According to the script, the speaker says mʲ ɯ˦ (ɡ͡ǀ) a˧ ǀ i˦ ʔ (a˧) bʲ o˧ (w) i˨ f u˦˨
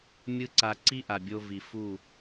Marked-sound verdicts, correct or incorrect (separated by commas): incorrect, incorrect, incorrect